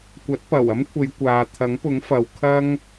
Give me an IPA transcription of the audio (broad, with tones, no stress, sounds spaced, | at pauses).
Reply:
kʷ ɐ˨˥ t̚ p ɐ˨˩ w ɐ˥ m kʷʰ e˨˧ j kʷ aː˨ t̪ʰ ɐ˨˥ ŋ p ʊ˨˥ ŋ f ɐ˨ w kʰ ɐ˥ ŋ